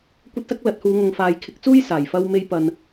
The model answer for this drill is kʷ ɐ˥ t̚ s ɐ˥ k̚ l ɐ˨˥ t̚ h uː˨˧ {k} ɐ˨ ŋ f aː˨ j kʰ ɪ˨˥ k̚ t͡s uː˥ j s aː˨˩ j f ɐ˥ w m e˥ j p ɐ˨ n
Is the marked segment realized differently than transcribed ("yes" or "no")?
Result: yes